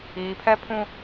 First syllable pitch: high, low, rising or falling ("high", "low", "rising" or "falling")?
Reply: low